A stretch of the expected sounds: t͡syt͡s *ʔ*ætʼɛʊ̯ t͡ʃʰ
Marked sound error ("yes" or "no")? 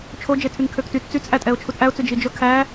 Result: no